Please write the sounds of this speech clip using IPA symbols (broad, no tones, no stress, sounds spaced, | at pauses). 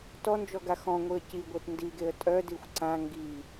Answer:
t ɔ n d͡ʒ ɔ ɡ a x ɔ̃ ŋʷ i ə̯ c i ɡʷ e t n d i ɡ e ə̯ tʼ œ d i xʷ ǀ ã ŋ ɡ i